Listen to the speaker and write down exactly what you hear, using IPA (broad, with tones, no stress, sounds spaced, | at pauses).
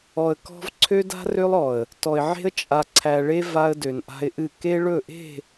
ɔ˨ ə̯ k ɔ̤˦ v ǀʰ ø˦ d a̤˦ r ø˦ lˠ ɔ˨ ə̯ | t ɔ˨ ɪ̯ ʕ e̤˦ ə̯ t͡ʃʼ a˨ ǀʰ æ˨ ɭ e˦ v a˦ ə̯ d ø˨ n ʔ a̤˦ ɪ̯ ʔ ɨ˦˨ k e˦ ɭ ɵ˦˨ ʔ e̤˦˨